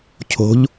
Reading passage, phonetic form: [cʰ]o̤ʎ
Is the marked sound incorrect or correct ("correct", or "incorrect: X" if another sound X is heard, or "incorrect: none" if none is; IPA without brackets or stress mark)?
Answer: correct